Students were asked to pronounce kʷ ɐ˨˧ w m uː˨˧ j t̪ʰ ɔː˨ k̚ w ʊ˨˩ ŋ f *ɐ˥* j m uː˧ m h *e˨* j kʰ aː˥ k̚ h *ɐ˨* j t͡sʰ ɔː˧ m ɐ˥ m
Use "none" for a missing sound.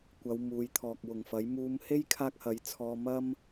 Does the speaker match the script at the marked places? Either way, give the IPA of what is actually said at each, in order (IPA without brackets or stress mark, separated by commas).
ɐ˨˥, e˥, ɐ˨˥